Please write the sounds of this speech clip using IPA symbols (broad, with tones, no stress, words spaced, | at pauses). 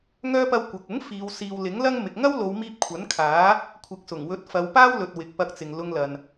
ŋœː˧pɐ˨˧w kʷɐ˨k̚ ʊ˨˥ŋ fiː˨˧wsiː˧w lɪ˨˥ŋlɐ˥ŋmɪ˨k̚ ŋɐ˥wlo˨˧wmiː˧p̚ kʷʰɐ˨˥nkʰaː˨˥ | kʷʰɪ˨k̚sʊ˨˩ŋwɵ˨˥t̚ fɐ˨˧wpaː˥wlɵ˨t̚ wɪ˨k̚pɐ˧k̚t͡sɪ˨ŋlʊ˧ŋ lɐ˨n